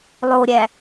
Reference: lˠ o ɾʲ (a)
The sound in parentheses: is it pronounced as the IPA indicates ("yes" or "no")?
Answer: no